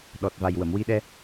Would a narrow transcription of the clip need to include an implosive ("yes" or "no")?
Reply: yes